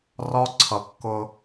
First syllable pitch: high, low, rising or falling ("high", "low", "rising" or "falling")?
high